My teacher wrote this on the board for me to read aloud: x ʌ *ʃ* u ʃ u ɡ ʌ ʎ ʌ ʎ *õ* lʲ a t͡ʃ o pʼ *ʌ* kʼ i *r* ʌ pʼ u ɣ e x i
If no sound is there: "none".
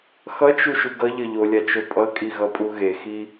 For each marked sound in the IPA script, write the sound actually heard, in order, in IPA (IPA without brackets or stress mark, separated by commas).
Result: t͡ʃ, o, ʌ, ɣ